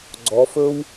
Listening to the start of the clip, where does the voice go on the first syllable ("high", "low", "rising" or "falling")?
rising